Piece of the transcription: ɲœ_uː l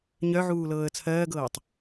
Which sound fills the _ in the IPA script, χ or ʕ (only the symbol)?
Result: ʕ